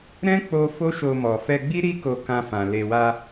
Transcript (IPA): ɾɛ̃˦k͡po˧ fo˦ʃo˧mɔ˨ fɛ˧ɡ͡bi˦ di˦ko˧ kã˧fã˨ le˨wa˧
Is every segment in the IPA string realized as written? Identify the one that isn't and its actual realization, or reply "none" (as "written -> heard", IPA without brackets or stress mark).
d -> ɾ